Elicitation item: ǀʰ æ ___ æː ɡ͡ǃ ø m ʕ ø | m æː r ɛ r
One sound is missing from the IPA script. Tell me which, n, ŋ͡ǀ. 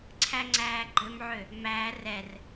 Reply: ŋ͡ǀ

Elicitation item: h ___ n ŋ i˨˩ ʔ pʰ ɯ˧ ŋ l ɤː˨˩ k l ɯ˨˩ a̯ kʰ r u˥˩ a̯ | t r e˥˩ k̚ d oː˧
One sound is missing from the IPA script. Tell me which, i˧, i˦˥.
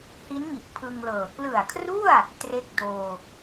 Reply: i˦˥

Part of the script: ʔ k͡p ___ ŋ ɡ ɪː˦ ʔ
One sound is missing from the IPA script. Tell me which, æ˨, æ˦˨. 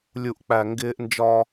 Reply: æ˨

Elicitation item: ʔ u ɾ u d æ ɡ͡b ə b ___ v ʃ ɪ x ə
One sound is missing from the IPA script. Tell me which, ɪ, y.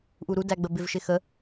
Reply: ɪ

